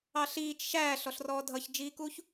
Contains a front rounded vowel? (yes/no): no